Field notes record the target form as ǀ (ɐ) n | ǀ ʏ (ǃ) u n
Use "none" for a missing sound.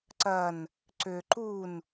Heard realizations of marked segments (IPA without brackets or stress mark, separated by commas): ɐ, ǃ